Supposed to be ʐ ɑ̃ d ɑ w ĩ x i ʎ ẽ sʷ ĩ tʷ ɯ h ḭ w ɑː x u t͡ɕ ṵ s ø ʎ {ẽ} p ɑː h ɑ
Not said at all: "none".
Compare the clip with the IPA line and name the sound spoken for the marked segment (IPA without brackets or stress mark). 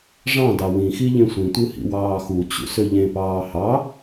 ẽ